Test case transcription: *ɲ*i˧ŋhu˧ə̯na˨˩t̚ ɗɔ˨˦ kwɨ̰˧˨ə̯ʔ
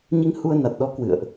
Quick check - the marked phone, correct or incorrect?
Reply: correct